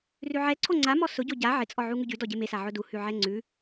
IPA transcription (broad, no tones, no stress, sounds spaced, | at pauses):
r ʉ ʕ ɛ ǀʰ o ŋ͡ǀ a m ɔ s ʊ ɟ o ɟ a ʕ ɪ t͡sʼ ɔ ʕ u ŋ ʉ ɟ ʉ d ɔ ɟ e m e s a ʕ ʊ d u h ʉ ʕ ɛ ŋ͡ǀ ʉ